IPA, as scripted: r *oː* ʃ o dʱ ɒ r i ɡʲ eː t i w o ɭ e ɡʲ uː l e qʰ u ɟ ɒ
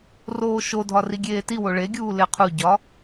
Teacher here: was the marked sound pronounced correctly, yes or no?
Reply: yes